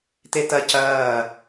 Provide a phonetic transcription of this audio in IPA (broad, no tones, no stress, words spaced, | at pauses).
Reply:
t̪et̪ɐ cɐː